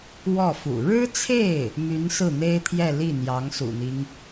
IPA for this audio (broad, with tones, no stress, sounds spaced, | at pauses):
w ɔ˥˩ f ṵ˨˩ ɻ ɻ̩˥ t͡sʰ e˥˩ ɪ̯ | m y˧˥ n s ɹ̩˥˩ n̪ e˥ ɪ̯ t̪ʰ j ɛ˥˧ l i˥˩ n̪ j ɑ˧˥ ŋ s ṵ˨˩ n̪ i˦ ŋ